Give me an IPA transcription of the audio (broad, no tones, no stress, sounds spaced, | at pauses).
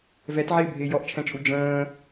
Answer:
v ɛ t ʕ ɪː bʱ ɪː j ɔ ʔ t͡ʃʰ ɛ̃ t͡ʃʼ u d͡ʒ ə̃ː